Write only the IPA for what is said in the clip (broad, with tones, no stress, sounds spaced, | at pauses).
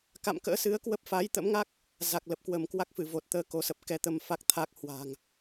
k a̰˧˨ m k ə̰ː˧˥ s ɨ˨˦ ə̯ k w ə˦˥ p̚ f aː˨˦ j t̪ ə̰˧˥ m ŋ a˦˥ k̚ | z a˨˩ k̚ l ə˨˩ p̚ k w ə˧˩ m k w a˦˥ k̚ f ɨ˧˩ v o˨˩ t̚ t̪ əː˨˦ k o˨˦ s ə˨˩ p̚ k ɛ˨˦ t̪ ə˧ m f a˦˥ k̚ t̪ʰ aː˦˥ k̚ h w a̤ː˨˩ ŋ